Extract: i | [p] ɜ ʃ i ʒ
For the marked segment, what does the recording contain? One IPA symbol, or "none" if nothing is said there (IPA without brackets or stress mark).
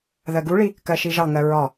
k